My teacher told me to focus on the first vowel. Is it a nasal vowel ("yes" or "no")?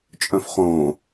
yes